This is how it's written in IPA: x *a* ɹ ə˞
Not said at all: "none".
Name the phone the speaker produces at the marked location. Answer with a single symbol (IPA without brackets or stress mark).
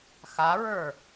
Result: a